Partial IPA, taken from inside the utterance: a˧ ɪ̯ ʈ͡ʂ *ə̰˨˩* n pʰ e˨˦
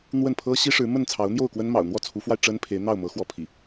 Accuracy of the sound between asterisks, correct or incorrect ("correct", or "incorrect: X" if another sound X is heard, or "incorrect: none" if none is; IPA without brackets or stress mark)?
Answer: incorrect: ə˦